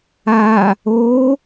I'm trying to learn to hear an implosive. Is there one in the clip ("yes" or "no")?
no